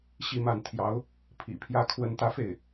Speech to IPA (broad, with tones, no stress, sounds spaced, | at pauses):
ɕ i˥˧ m a˥˩ n t̪ʰ j ɑ˧˥ ʊ̯ | pʰ ḭ˨˩ pʰ j ä˥˩ kʰ w ə˥ n t̪ ä˥ f e˥˩ ɪ̯